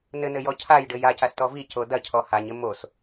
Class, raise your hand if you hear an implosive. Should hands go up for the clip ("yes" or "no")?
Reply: no